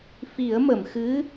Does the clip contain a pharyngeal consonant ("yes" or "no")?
no